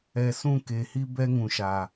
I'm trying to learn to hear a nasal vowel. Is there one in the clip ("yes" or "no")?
yes